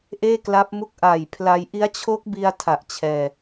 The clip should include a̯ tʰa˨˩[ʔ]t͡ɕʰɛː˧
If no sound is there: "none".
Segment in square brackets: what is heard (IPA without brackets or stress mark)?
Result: ʔ